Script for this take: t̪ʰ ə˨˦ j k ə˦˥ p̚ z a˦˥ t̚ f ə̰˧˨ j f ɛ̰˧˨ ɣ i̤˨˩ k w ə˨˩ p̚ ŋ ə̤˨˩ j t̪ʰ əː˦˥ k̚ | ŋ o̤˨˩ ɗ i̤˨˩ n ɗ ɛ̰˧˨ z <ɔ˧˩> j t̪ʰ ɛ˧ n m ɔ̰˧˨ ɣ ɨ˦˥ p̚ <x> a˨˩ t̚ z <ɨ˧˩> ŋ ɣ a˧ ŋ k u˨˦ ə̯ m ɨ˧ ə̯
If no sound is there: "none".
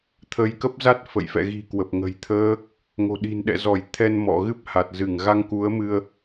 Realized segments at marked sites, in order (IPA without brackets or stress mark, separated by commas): ɔ˧˩, h, ɨ˧˩